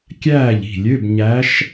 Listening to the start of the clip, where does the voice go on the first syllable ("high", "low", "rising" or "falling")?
falling